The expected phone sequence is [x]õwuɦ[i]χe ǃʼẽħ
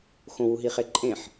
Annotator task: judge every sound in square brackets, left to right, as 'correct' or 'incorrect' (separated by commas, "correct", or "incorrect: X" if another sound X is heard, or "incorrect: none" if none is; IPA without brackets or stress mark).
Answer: correct, correct